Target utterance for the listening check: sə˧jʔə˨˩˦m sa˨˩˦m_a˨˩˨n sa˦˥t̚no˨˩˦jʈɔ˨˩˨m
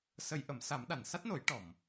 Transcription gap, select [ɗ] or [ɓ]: ɗ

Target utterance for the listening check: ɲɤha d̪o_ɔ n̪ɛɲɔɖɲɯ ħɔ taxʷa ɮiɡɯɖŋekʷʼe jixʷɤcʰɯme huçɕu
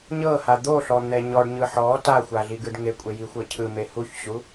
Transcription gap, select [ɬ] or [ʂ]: ɬ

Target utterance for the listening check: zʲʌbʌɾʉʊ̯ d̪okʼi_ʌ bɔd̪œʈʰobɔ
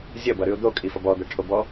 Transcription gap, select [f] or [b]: f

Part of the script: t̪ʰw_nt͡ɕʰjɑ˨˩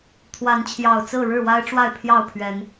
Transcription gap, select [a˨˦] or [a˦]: a˨˦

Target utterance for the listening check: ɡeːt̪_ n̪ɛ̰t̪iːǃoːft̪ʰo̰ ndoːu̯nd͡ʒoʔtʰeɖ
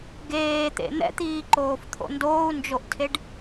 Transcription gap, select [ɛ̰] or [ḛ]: ḛ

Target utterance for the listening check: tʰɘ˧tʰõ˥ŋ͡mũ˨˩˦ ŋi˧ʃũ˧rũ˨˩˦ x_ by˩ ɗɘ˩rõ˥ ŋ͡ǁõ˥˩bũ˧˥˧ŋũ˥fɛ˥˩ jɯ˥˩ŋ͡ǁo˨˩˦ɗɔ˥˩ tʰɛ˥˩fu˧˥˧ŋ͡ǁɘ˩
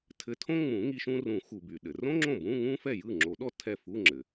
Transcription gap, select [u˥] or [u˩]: u˩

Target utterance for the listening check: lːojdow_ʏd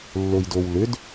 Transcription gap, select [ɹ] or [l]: l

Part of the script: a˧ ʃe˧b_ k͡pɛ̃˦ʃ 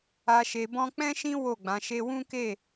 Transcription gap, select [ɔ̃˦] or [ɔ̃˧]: ɔ̃˦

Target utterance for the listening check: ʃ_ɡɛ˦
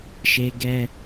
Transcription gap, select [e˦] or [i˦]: e˦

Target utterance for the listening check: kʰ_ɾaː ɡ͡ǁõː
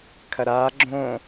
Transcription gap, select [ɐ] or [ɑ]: ɐ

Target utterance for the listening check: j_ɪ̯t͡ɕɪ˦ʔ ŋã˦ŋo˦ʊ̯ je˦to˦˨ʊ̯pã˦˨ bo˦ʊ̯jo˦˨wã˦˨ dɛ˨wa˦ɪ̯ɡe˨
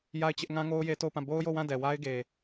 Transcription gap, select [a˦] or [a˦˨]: a˦˨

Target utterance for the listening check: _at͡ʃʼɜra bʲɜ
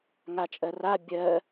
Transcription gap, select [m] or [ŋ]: ŋ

